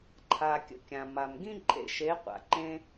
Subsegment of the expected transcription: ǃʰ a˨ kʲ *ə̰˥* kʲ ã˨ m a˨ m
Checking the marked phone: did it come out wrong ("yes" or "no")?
yes